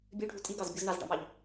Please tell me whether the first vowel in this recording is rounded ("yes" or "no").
yes